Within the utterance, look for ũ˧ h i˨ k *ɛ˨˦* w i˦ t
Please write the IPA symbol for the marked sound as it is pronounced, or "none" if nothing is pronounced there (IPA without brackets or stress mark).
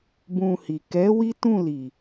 ɛ˨˦